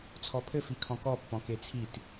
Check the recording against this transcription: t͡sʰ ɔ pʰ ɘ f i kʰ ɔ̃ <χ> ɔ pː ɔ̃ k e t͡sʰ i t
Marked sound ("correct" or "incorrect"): incorrect